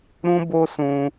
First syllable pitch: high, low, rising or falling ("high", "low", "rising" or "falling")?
high